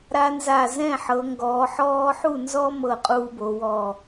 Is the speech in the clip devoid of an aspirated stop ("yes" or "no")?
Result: yes